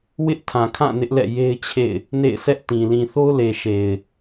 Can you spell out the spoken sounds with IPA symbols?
w ɪ˦ ʔ tʰ ã˨ kʰ ã˦˨ n ɪ˦ ʔ l ɛ̰˦˨ j e˦ ɪ̯ t͡ɕʰ ḛ˦˨ ɪ̯ | n ḛ˦˨ ɪ̯ s ɛ˦ ʔ t ĩ˨ l ĩ˨ θ o˦ ʊ̯ l e˨ ʃ e˨ ɪ̯

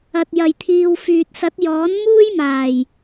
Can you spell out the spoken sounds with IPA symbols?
ɐ˨ t̚ j ɐ˨ j t̪ʰ iː˨ w f yː˨ t̚ s ɐ˨˥ t̚ j ɔː˨˥ n m uː˥ j m aː˨˩ j

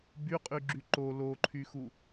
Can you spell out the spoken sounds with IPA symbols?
b y qʼ y ɡ͡ǁ y ǃ o l o ǃʰ y x u

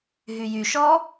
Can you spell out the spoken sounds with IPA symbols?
ɦ y j y ʃ ɔ

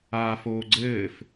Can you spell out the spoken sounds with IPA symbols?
aː f oː ɡ͡ǀ ɘː f

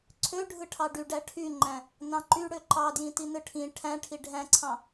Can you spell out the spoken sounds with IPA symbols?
ǀʰ ø ɖʱ ɯ ʈʰ ɑ ɖ y ɖ æ ʈʰ y ŋ͡ǃ æ̃ | n ɑ̃ ǃ y ɽ ø ǃ ɑ d j ĩ t i n ɯ ʈʰ ĩ ʈʰ æ̃ ʈʰ i ɖʱ æ̃ ǀʰ ɑ̃

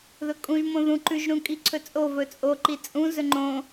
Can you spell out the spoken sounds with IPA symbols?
ð ɵ kʼ ũ ʒ m õ ð ũ ǃ ʉ ʒ ɾ ũ kʼ i ǀʰ ɵ t͡sʼ o v ɵ t͡sʼ o ǃ i t͡sʼ ũ z ɵ ŋ͡ǃ õ

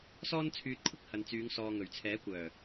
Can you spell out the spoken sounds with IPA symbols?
s ɔː˧ n t͡sʰ yː˨ t̚ kʷʰ ɪ˧ k̚ h ɐ˨ n t͡s yː˨˧ ŋ s ɔː˨ ŋ ɵ˨˩ ɥ t͡sʰ ɛː˨˥ kʷ œː˨˩

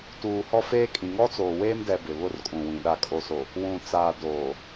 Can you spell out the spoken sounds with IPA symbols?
t uː˨ h ɔ˦ f eː˦ kʼ ĩ˨ ŋ ɔ˦ t͡s oː˨ w eː˦ m d ɛ˨ b ɪ˨ β ʊ˦˨ r kʼ ũ˨ w ĩ˨ ɗ a˨ kʼ o˨ s o˨ | w ũ˨ t͡s aː˨ d oː˨

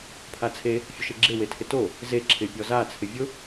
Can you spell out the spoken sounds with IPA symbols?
pʰ a t͡sʰ e | fʲ ʊ ʃ e ɡ͡ǁ e w e tʰ ɪ t o | z e ǁʰ ɪ pʲ ɔ z a t͡sʰ ɪ vʲ ʊ

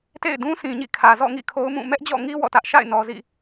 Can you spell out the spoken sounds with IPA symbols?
t ḛ˦˨ ɪ̯ d ũ˦ sʰ ĩ˨ ɲ ḭ˦˨ kʰ ä˨ z ɔ̰˦˨ ŋ ḭ˦˨ kʰ o˦ ʊ̯ m ũ˦˨ m ɛ˦ ʔ d͡ʑ ɔ̰˦˨ ŋ i˦ w ɔ̰˦˨ t ä˦ ʔ ʃ a̰˦˨ ɪ̯ n ɔ˨ z ḭ˦˨

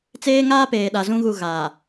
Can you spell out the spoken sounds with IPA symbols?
t͡s eː˦ ŋ aː˦ p eː˨ ɗ a˨ z ũ˦ ɣ u˨ ɣ aː˨

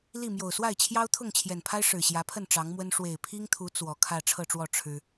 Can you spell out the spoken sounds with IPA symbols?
l i˥˨ m j o˨˩ ʊ̯ s w a˥˨ ɪ̯ t͡ɕʰ j ɑ˦ ʊ̯ t̪ʰ ʊ˥˨ ŋ t͡ɕʰ j ɛ˨˩ n pʰ a˦ ɪ̯ ʂ ɻ̩˨˩ ɕ j ä˨˦ pʰ ə˥˨ n ʈ͡ʂ ɑ˨˦ ŋ m w ə˦ n ʂ w e˨˩ ɪ̯ pʰ i˦ ŋ t̪ʰ u˨˦ t͡s w ɔ˨˩ kʰ ä˥˨ ʈ͡ʂʰ ɤ˥˨ ʈ͡ʂ w ɔ˥˨ ʈ͡ʂʰ ɻ̩˦

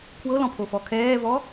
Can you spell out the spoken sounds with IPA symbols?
kʰ w ɤ l ɔ̃ pʰ o f ɔ kʰ ɛː v ɔ

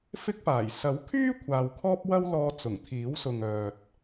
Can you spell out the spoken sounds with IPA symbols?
f ɪ˥ k̚ p aː˨˩ j s ɐ˨˥ w kʰ yː˥ kʷʰ aː˨ w kʰ ɔː˥ p̚ w ɐ˥ w l ɔː˧ t͡s ʊ˨˩ ŋ t̪ʰ iː˨˥ w s ʊ˨ ŋ œː˨ t̚

